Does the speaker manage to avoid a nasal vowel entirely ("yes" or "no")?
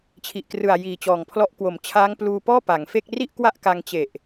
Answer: yes